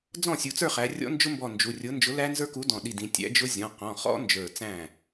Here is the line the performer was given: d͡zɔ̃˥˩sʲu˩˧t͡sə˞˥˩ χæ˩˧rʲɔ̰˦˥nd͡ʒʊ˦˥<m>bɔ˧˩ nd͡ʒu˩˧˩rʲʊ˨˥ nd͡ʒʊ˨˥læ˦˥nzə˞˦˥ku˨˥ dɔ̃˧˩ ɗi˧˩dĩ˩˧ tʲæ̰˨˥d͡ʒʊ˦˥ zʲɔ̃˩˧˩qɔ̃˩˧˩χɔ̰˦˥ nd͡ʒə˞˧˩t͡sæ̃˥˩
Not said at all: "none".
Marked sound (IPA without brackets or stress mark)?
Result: m